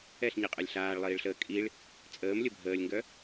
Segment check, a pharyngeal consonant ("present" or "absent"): absent